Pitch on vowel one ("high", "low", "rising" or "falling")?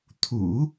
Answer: low